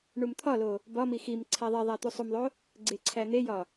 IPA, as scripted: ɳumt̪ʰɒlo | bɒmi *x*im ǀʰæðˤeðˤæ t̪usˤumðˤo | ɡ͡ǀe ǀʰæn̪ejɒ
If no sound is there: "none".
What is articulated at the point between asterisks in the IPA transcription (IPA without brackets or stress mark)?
x